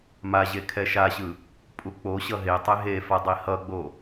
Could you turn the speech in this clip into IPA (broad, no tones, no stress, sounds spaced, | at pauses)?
m a ʑ e kʰ ɛ ʃ a ɕ ɯ | pʼ u k͡p o ɕ ʌ ɦ e tˤ e ɦ e f a dˤ i h ʌ ɡ͡b o